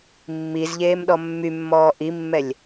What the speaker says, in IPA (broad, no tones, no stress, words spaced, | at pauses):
mːiz ʎeːmɗɔmːymːɔː ʔimːɛlʲ